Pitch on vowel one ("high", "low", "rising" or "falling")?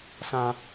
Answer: high